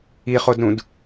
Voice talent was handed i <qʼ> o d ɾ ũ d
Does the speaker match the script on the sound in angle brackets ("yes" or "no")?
no